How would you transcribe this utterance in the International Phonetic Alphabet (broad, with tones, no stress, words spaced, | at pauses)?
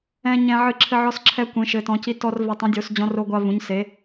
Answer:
ɛ̃˦ ɲɛ̃˦ʕɨ˦ ǁʰɘ˦ʕɔ˦s ǁʰɛ˦kʷẽ˨˦ʃɘ˨˦tɔ̃˨˦ ci˦tɔ˦r vɛ˨˦tˤũ˨˦ dʲo˨˦s d͡ʑɔ̃˦ro˦ɡʷa˦ vũ˨˦ɲse˨˦